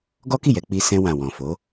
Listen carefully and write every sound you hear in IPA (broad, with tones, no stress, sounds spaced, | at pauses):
ɡ ɔ˦ k i˦˨ j ɛ˧ k͡p i˧ s ɛ̃˧ w ã˨ w ɔ̃˨ f o˨˦